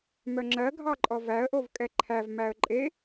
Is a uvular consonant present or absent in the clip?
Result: absent